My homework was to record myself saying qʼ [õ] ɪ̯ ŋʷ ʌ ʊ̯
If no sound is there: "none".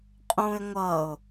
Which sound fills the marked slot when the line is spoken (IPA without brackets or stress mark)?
ũ